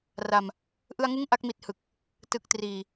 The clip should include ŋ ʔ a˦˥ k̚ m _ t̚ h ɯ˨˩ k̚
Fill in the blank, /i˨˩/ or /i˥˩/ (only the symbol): i˨˩